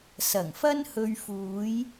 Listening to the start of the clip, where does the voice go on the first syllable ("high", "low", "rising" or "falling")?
low